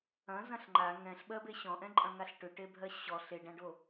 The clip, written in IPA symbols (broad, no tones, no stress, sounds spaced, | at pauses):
ɐ̃ z ɐ̃ ɬ ŋ͡ǃ a ŋ ɛ̃ ɬ ɓ ɜ b e ɕ ɔ̃ ʔ ɛ̃ ǃʼ ɐ̃ ŋ a ɬ ʈ ʏ ʈ e bʱ ɜ ɕ ɔ ɬ e ɖ ã ɖ o